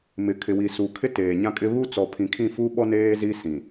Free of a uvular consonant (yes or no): yes